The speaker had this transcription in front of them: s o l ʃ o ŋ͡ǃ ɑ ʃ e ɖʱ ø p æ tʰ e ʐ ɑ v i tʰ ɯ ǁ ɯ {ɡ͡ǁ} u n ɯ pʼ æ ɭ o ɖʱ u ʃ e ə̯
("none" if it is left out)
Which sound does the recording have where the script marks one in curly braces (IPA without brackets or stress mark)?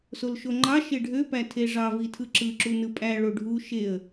ǁ